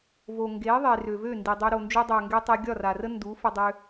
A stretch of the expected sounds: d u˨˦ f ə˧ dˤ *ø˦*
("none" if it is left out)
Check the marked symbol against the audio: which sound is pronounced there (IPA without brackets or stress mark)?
ø˧